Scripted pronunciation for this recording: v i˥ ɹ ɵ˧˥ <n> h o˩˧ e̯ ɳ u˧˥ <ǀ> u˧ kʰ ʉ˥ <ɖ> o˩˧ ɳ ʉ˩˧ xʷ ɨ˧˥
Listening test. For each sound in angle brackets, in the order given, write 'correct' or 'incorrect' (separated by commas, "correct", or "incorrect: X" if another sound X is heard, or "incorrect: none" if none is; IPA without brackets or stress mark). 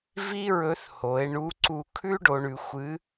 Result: incorrect: θ, correct, correct